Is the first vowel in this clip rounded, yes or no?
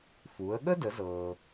yes